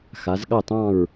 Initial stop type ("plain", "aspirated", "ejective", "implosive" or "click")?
implosive